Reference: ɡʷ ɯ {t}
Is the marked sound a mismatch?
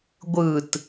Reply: no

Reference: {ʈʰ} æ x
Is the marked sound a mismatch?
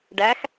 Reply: yes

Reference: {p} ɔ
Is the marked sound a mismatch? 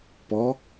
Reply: no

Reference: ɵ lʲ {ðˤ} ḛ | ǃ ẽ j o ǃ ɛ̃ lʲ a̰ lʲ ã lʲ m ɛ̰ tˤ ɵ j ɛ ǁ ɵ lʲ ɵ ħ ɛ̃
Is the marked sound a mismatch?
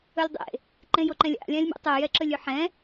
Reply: yes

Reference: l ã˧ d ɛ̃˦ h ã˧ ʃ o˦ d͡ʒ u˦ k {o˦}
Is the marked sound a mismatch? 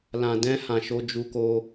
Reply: no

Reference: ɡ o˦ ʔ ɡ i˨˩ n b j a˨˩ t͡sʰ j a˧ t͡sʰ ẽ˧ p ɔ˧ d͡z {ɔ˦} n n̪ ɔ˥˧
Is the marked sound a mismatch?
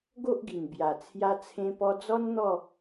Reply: no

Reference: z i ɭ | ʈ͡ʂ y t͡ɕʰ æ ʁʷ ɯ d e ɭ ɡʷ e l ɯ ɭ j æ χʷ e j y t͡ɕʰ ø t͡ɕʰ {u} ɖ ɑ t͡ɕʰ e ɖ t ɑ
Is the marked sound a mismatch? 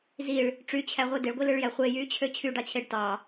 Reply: yes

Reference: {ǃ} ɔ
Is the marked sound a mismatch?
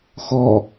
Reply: yes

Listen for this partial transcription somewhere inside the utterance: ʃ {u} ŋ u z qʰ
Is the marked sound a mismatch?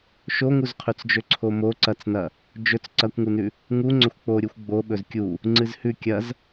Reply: yes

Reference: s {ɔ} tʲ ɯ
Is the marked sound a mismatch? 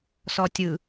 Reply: no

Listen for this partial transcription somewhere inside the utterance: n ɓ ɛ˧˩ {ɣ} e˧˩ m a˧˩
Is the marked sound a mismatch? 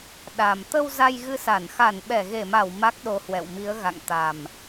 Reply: no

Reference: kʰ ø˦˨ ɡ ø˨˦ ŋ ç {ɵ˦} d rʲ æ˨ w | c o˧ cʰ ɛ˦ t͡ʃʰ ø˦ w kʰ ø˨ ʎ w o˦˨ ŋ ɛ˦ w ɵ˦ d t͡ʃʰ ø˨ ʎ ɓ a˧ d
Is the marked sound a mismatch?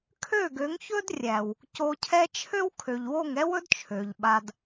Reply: no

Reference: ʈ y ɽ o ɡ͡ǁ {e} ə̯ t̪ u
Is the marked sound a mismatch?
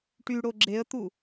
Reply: no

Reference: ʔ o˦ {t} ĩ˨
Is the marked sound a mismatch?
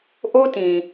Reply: no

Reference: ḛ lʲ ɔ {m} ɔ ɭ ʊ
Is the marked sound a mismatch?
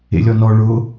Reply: yes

